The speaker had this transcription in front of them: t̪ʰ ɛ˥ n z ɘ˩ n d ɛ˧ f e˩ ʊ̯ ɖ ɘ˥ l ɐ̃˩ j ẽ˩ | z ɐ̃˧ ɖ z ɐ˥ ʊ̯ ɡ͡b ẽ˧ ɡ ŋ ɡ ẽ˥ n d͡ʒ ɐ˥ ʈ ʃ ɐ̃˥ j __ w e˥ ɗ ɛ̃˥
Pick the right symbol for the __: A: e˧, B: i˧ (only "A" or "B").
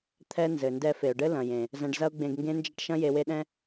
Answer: A